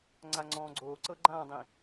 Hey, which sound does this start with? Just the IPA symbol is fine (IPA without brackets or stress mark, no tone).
ŋ͡ǀ